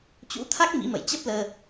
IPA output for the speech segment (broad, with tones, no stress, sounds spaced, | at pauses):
t͡ɕ ṵ˧˥ t̪ʰ a˦˥ k̚ m ḭ˧˥ m ə̰˧˨ j t͡ɕ ə˦˥ p̚ l əː˧